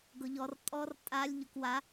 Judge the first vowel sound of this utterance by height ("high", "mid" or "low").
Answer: high